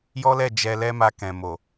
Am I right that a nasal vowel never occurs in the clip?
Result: no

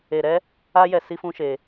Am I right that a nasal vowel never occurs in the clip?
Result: no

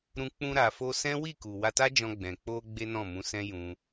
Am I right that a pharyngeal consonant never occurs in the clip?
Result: yes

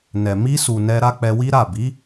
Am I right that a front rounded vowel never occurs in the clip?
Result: yes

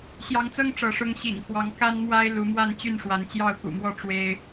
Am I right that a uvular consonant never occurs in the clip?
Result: yes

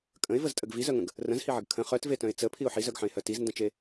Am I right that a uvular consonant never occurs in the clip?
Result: no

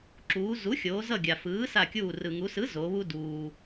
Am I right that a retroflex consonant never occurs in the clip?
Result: yes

